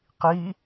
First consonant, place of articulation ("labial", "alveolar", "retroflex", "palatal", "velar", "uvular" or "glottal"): uvular